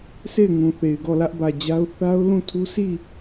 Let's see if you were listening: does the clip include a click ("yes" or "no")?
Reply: no